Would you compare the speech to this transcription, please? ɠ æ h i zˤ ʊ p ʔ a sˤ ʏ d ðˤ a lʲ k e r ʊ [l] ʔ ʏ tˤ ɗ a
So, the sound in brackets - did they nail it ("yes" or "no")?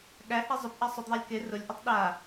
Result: no